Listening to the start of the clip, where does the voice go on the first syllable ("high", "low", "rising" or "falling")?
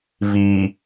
low